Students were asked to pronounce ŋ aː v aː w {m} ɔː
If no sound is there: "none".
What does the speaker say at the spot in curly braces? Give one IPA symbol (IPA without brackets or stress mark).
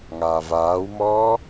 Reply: m